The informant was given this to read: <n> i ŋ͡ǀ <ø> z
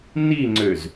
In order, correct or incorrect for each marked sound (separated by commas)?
correct, correct